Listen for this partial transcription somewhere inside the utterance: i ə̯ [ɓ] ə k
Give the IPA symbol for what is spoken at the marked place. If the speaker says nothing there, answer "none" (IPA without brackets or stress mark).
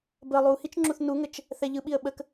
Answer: ɓ